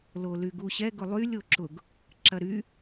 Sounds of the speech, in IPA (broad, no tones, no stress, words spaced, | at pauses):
lolyɡuɕɛ ɡʊlˠylʲ oǁʊɡ | ǁɐɾy